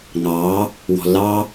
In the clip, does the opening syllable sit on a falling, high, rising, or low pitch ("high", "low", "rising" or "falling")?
rising